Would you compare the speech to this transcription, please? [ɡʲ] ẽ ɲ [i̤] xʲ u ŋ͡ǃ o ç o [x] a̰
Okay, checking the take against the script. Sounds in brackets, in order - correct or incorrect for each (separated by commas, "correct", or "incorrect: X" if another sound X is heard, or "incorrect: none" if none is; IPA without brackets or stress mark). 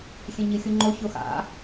incorrect: xʲ, incorrect: i, correct